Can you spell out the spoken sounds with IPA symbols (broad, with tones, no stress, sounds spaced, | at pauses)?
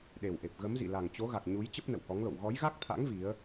ɗ e˨˩ w ʔ e˨˩ p̚ ɣ ə˨˦ m z ḭ˧˨ l a˨˩ ŋ t͡ɕ o˨˦ ɣ a˨˩ k̚ ɲ u˨˦ j t͡ɕ ə˦˥ p̚ n ə̰˧˨ w h ɔ˨˦ ŋ l o̰˧˨ w ɣ ɔ˨˦ j ɣ a˦˥ k̚ t̪ʰ a̰˧˥ ŋ v i˨˦ ə̯